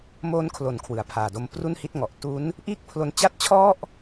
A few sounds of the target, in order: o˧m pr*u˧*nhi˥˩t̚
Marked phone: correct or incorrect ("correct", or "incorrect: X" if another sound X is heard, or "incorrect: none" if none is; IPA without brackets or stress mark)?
incorrect: u˥˩